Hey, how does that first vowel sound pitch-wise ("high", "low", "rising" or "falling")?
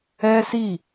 high